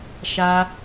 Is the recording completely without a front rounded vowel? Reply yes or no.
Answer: yes